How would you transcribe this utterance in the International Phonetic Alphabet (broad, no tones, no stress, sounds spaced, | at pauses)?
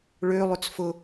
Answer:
ɭ ø lˠ ʏ t͡s f ʊ